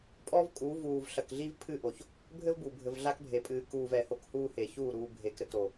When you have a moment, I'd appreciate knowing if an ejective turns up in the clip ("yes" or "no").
yes